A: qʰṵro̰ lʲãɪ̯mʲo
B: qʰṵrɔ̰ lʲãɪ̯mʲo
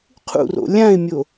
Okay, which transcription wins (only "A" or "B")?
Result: A